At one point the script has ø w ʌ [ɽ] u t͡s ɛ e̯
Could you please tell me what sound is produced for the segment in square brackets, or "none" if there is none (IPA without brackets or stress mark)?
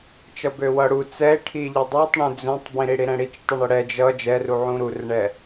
ɽ